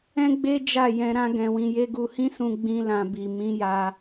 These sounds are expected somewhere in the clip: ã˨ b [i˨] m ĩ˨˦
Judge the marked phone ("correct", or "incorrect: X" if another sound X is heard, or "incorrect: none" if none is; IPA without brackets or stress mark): correct